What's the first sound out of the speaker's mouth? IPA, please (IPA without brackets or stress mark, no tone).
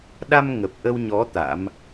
ɗ